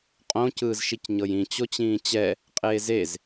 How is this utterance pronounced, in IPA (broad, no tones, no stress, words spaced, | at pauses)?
qʼõ cɯːzʃicɲɤjĩ t͡ɕot͡ɕĩːt͡ɕɛ | qʼeːzez